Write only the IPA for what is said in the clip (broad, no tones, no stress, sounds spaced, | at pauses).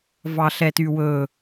v ɑ ɬ ɛ t y w ɵ